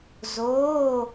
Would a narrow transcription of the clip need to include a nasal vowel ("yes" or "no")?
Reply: no